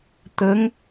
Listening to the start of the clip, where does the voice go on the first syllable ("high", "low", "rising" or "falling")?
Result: rising